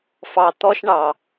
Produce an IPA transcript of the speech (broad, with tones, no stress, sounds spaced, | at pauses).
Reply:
f ɑ˨ t̪ ɔ˦ ʃ ɳ ɑ˨